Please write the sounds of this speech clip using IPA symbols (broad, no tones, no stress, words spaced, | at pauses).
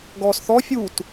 ɡɔːsθɔ fʲut